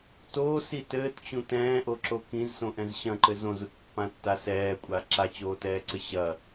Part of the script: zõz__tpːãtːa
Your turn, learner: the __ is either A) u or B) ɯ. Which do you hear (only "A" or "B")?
A